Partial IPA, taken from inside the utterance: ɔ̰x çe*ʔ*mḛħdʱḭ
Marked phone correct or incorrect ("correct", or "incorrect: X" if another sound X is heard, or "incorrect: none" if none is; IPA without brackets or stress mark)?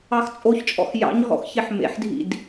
incorrect: ħ